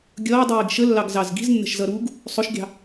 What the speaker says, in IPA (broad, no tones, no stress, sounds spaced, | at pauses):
ɡʲ ʌː dˤ iː ɡ ʃ ə lː ɑ ɡ z ɑ z ɡ i̤ z nː ə̤ ʃ z ʌ ɾ uː ɡ | sˤ ʊ ʃ ɡʲ ɑ̤